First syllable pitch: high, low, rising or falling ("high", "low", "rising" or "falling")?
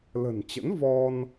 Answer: low